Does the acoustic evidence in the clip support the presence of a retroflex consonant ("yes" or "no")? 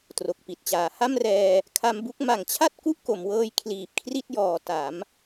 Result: no